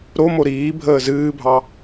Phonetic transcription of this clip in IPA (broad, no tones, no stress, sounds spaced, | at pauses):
ɾ o m o ɾ iː bʱ əː z ɨː bʱ ɑ